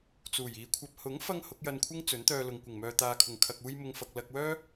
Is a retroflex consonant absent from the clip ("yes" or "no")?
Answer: yes